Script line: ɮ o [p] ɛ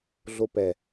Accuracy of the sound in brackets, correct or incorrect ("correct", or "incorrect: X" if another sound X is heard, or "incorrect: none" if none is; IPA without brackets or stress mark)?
correct